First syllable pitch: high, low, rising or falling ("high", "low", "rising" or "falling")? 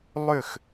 falling